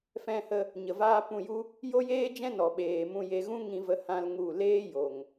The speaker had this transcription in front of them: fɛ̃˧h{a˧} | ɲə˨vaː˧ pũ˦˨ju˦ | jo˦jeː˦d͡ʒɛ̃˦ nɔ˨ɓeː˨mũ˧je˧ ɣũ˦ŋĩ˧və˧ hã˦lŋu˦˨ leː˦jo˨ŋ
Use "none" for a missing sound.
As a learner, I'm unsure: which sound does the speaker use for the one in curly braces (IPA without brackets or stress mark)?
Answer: ə˧